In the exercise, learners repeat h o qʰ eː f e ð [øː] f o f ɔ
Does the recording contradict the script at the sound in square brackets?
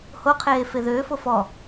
no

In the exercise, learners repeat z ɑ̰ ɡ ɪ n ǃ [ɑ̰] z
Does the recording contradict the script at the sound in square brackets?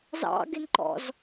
yes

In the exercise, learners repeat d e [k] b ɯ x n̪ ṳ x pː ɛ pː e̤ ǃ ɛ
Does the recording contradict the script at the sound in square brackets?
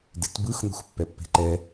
yes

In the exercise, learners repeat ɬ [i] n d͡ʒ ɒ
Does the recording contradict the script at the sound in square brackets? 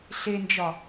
yes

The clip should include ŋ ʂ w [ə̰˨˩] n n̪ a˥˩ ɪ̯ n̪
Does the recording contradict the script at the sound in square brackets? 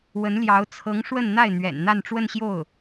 yes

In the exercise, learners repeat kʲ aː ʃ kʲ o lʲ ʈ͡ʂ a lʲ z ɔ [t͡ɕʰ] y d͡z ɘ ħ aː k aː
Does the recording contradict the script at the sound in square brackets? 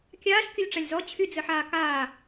no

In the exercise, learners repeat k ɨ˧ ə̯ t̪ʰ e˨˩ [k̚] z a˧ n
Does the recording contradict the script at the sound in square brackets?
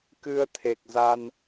no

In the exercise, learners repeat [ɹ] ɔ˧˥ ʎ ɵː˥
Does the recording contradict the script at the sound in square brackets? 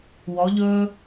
yes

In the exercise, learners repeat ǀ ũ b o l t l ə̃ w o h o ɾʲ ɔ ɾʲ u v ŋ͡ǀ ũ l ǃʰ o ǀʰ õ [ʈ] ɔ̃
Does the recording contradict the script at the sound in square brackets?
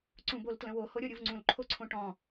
no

